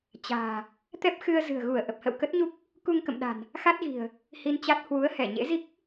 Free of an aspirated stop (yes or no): yes